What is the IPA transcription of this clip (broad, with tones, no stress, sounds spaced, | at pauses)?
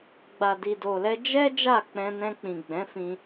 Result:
ɡ͡b a˨ d i˨ d o˨ l ɛ˧ d͡ʒ ɛ˦ d͡ʒ a˦˨ k͡p ɛ̃˧ n ɛ̃˧ k͡p ĩ˨ ɡ͡b ɛ̃˨˦ f ĩ˧